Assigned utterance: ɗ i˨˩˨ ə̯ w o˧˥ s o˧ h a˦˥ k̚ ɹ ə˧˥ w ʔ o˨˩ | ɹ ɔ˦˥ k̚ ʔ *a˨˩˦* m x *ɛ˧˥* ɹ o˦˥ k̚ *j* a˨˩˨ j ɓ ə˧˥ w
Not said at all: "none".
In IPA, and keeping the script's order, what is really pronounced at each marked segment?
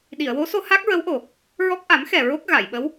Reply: a˨˩˦, ɛ˨˩, ɣ

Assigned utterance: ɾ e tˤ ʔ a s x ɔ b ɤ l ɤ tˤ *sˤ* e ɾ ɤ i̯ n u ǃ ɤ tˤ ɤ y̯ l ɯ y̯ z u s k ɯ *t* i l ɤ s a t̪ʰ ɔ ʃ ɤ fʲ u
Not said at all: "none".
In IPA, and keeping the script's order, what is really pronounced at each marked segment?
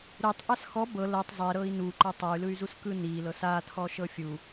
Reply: zˤ, n

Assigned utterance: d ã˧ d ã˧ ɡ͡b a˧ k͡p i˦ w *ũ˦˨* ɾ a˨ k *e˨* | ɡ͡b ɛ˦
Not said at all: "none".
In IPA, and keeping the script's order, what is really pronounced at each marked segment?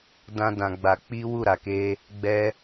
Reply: u˦˨, e˧

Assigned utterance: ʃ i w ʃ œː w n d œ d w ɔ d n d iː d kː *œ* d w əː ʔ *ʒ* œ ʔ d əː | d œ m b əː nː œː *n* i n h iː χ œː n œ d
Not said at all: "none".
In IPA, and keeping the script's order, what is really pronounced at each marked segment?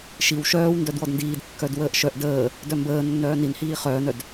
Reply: œ, ʃ, n

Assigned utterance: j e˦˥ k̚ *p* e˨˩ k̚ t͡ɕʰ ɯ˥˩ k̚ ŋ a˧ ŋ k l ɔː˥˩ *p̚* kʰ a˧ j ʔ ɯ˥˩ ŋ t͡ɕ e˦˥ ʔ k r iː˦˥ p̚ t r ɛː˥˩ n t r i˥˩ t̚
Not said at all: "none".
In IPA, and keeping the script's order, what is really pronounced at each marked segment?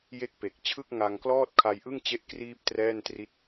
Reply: p, t̚

